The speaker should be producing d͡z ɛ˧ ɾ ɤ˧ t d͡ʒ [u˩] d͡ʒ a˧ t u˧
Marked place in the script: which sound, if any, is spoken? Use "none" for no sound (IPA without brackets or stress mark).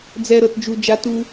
u˧